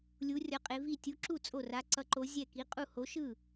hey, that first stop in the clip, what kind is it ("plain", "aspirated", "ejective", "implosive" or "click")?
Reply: ejective